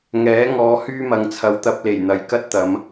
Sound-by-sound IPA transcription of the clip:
ŋ ɛː˨˥ ŋ ɔː˨˧ h yː˥ m ɐ˨ ŋ t͡sʰ ɐ˨ w t̪ ɐ˧ p̚ l e˨˩ j n̪ ɐ˨ j k ɐ˥ t̚ t̪ ɐ˨˧ m

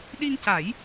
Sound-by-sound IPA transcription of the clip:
ɗ i˧ ŋ c a˨˩˦ j

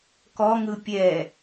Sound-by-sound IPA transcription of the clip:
k ɔ ŋ ɯ pʲ ɛ

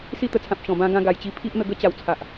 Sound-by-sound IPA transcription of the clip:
s i˥˧ t̪ ə˧ t͡sʰ ã˨ p̚ ɕ ɔ̃˨˩ b ã˦ ɡ ã˧ ɡ a˨˩ j t͡ɕ i˧ pʰ i˦ ʔ n̪ ə˧ ɡ ə˦ t͡ɕ a˨˩ w t͡sʰ a˨ ʔ

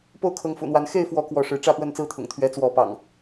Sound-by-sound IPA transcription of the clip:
p o˥˨ ʊ̯ kʰ ɤ˨˦ ŋ f ṵ˨˩ n̪ w a˨˦ n x e˥˨ ɪ̯ f w ɔ˨˦ k w ɔ˨˦ ʂ ɻ̩˨˦ ʈ͡ʂ ä˥˨ p w ə˥˨ n t͡s ɹ̩˥˨ t̪ʰ ʊ̰˨˩ ŋ t̪ʰ ɥ ɛ˨˦ t͡s w ɔ˨˦ p ɑ̰˨˩ ŋ

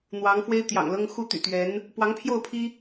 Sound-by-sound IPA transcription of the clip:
n̪ w ɑ˧˥ ŋ f w e˥ ɪ̯ t̪ j ɑ̰˨˩ ŋ l ɤ˥ ŋ x u˥˩ t̪ y̰˨˩ t̪ ɥ ɛ˧˥ n | p w ɑ˧˥ ŋ pʰ j o˥˩ ʊ̯ pʰ i˥

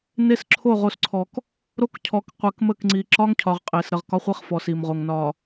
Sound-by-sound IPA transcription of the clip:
n e˦ s ǁʰ o˦˨ ʁ o˨ s ǀʰ ɔ˨ k | ɾ o˦ k cʰ ɔ˨ k qʷ e˨ k m ə˦˨ k ŋ͡ǀ i˨ ǁ ɒ˦ ŋ cʰ ɒ˨ ʁ qʼ e˨ s ɾ ə˨ ʁ k ɒ˦ χʷ e˦ χ f ɔ˨ s i˨ m ʁ o˨ ŋ n ɒ˨

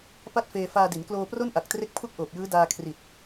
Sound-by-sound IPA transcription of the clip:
p a˥˩ t̚ f eː˧ f aː˧ d i˩˦ n k l oː˧ p r o˥˩ n ʔ a˨˩ k̚ t r e˦˥ k̚ pʰ u˥˩ k̚ ʔ oː˨˩ p̚ j ɯː˦˥ d aː˧ kʰ r i˨˩ t̚

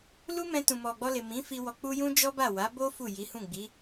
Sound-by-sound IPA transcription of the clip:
l u˦ m ɛ̃˧ t ũ˨ m ɔ˨ ɡ͡b ɔ˧ l e˨ m ĩ˨˦ f i˧ w ɔ˨ k͡p u˧ j ũ˦ d͡ʒ ɔ˦ b a˦˨ w a˨˦ b o˦ f u˦˨ j i˨˦ h ũ˦˨ ɡ͡b i˨˦

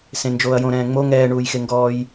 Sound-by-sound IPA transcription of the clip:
s ẽ n d͡ʒ oː ɐ̯ j õ ɾ ɛ̃ː ŋ͡m o ŋ ɛː ɳ uː j x e ŋ ɡ ɔː j

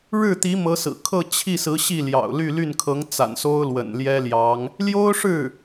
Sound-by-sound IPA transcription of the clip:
ɻ ɻ̩˥˩ t̪ i˧˥ m ɤ˧˥ s ɹ̩˨˩ kʰ ɤ˥˧ t͡ɕʰ i˥˩ s ɹ̩˧˥ ɕ i˥˩ l j ɑ̰˨˩ ʊ̯ l y˥˧ l y˥˩ n kʰ ɤ˧˥ ŋ t͡s a̰˨˩ n s o˥ ʊ̯ l w ə̰˨˩ n l j ɛ˥ l j ɑ˧˥ ŋ | l j o˥ ʊ̯ ʂ ɻ̩˥˩

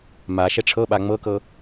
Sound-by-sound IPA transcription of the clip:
m a ʃ ɛ ʈ͡ʂʰ ɤ ɓ a ŋ͡m ɤ k ɤ

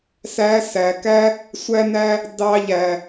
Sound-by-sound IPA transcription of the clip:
s æ˧˥ s æ˩˧ k æ˥ | sʷ æ˧ n æ˧ | d ɑ˧ ʎ æ˩

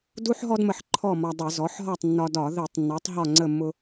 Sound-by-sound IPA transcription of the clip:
d u˥ ħ ɦ ɔ˥ d m ə˧ ħ ǃʰ ɔ˥˨ m ɒ˧ dˤ i˧˩˧ z ɔ˩˥ ħ ɦ ɒ˥˨ tˤ nː ɒ˧ d ɒ˧˩˧ ð i˧˩˧ tˤ nː ɔ˩˥ tˤ ɦ ɒ˥˨ ŋ͡ǀ ə˥˨ mː ʊ˥

